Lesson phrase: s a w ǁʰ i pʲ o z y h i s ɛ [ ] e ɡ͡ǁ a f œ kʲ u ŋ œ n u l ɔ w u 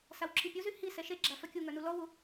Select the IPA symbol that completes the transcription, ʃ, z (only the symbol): ʃ